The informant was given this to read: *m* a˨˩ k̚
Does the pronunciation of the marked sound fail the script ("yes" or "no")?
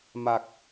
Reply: no